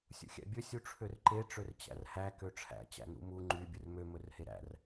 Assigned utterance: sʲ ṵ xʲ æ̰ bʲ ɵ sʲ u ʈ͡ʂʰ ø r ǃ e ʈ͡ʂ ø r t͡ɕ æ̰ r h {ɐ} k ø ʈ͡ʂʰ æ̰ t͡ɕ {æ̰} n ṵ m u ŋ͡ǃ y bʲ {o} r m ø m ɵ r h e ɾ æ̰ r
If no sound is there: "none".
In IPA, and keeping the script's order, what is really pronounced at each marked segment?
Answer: æ, æ̰, ɵ

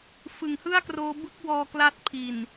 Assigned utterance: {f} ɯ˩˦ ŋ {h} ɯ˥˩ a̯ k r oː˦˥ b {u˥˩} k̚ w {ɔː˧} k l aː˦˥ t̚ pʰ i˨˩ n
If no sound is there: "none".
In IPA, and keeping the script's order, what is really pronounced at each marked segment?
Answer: f, h, ɯ˥˩, ɔː˧

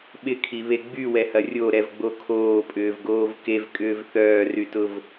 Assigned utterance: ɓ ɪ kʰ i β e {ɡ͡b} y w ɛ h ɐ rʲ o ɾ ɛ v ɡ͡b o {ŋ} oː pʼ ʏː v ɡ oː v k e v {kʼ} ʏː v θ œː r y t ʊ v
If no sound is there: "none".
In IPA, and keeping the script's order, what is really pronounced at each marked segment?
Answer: ɡ͡b, kʰ, kʼ

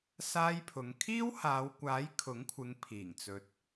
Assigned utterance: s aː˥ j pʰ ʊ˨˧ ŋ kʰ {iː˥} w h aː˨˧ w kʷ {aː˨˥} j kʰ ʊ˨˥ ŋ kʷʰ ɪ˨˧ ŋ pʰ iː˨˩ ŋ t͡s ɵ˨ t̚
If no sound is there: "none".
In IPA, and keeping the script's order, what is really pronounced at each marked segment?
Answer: iː˥, aː˨˥

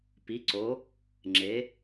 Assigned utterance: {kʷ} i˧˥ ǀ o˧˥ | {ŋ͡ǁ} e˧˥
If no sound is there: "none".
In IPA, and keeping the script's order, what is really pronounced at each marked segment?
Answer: p, ŋ͡ǁ

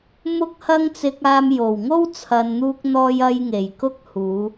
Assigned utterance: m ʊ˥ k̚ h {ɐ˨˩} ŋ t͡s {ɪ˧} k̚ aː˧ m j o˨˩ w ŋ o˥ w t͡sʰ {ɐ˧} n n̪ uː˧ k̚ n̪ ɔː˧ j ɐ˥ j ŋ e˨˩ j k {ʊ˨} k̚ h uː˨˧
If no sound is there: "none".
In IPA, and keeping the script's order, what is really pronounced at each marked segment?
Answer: ɐ˥, ɪ˧, ɐ˨, ʊ˥

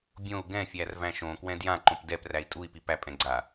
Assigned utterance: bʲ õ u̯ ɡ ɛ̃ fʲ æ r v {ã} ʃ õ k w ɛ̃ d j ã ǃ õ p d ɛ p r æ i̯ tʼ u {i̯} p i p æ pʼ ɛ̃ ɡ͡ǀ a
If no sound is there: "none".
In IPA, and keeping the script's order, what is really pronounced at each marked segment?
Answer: æ̃, i̯

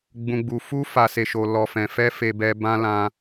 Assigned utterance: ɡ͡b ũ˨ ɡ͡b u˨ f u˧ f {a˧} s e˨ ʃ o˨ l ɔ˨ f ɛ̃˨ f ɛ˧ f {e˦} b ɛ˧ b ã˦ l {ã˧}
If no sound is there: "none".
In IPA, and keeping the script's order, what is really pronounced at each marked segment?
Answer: a˨, e˧, ã˧

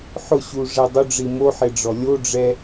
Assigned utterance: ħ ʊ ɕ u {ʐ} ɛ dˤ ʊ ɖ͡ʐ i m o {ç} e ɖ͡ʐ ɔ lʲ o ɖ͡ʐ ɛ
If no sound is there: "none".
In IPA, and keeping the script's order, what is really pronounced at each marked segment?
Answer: ʐ, ħ

